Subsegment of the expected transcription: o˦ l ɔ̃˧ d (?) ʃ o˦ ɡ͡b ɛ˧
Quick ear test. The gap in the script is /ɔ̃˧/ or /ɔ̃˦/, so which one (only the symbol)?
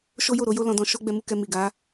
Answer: ɔ̃˧